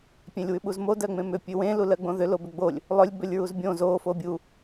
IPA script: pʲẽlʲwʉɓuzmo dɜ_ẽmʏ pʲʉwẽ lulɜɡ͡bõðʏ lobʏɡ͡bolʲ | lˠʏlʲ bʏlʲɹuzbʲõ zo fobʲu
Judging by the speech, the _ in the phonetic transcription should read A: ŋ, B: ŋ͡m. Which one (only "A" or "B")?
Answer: B